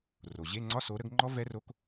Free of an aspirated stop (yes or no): yes